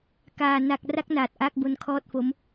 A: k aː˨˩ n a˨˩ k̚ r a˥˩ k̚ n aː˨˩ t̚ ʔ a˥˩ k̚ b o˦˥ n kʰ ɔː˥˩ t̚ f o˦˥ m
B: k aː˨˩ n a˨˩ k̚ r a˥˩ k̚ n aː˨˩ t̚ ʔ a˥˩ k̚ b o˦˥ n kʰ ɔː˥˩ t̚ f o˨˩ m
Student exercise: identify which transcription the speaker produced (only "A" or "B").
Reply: A